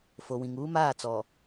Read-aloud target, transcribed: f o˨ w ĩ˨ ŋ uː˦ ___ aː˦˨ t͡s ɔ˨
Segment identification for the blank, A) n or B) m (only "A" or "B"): B